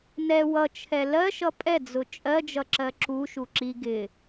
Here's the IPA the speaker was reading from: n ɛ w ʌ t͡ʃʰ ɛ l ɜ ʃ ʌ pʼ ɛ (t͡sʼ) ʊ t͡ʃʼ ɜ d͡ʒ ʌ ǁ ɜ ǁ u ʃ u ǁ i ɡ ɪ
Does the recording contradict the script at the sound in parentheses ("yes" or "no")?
yes